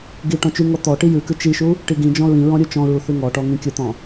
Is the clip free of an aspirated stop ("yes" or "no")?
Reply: yes